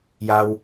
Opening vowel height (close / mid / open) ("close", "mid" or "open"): open